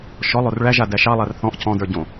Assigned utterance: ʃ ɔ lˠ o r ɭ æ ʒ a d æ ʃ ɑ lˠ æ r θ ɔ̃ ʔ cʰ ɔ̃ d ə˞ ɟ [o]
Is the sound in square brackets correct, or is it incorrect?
incorrect